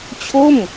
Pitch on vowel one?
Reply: falling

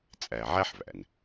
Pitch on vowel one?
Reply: low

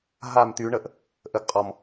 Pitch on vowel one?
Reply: falling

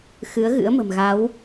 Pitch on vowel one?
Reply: rising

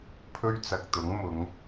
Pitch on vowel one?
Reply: high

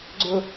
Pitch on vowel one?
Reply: high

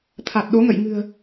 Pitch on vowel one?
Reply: low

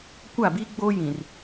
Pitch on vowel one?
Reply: falling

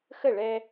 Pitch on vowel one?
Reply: falling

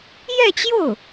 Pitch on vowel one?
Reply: falling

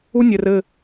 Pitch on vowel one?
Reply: high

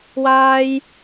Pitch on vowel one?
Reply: high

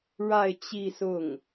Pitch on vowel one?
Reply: falling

